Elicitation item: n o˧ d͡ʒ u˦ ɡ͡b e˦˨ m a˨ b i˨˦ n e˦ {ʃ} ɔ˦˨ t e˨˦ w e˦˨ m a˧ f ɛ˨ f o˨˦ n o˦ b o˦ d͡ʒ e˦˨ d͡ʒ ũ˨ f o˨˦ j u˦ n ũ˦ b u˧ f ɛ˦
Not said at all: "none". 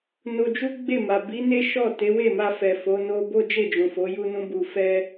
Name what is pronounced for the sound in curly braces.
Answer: ʃ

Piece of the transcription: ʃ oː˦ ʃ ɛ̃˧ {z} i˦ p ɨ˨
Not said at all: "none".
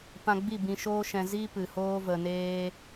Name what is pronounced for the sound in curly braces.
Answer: z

